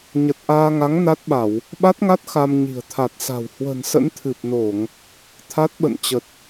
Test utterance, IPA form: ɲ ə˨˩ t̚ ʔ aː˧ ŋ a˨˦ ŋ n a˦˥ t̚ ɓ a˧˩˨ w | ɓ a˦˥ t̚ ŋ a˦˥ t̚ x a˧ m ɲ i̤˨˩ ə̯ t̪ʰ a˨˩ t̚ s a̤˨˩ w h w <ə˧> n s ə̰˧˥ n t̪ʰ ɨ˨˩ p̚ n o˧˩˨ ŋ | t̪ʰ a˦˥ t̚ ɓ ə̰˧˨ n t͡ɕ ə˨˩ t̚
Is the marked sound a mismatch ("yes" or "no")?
yes